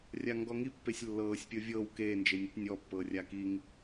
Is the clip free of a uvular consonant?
yes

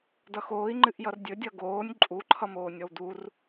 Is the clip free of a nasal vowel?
yes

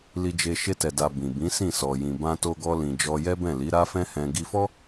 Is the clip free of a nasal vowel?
no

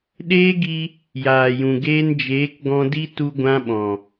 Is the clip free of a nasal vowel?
no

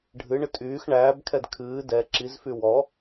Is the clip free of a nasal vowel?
yes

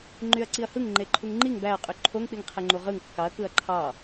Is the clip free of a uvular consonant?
no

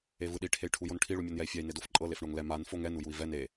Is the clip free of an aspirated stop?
no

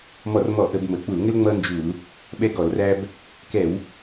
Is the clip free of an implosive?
no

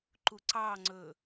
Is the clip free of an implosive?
yes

